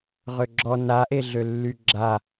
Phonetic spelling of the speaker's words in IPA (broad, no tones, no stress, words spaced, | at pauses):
ʁøɡ͡ǁɔ naʔeɮø lːyɡ͡ǁa